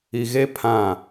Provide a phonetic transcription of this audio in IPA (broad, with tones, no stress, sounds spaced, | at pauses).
i˨ ɣ e˦ pʰ ã˦˨